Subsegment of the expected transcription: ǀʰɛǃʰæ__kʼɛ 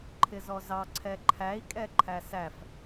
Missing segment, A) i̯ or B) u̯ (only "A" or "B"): A